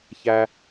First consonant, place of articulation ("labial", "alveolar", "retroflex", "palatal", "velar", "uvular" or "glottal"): palatal